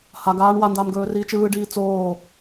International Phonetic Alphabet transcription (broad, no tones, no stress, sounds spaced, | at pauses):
h a ɡ aː ɳ w a n d aː m ɡ ɵː r iː t͡ʃ ɯː ɖ iː t͡s oː